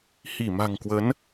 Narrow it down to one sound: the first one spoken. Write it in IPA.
h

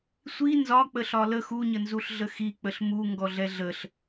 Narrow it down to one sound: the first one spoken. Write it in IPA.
sʷ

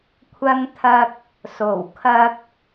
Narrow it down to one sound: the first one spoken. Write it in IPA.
kʷʰ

